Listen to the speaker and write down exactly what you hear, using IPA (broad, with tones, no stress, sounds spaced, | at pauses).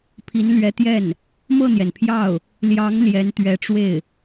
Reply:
pʰ i˧˥ n l ɥ ɛ˧˥ t̪ j ɛ˥˩ n | m ɤ˥˩ n̪ j ɛ˩ n pʰ j ɑ˥˩ ʊ̯ | l j ɑ˧˥ ŋ l j ɛ˧˥ n t̪ ɥ ɛ˧˥ ʈ͡ʂ w e˥˩ ɪ̯